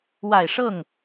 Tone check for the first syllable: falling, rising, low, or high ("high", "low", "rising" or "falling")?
low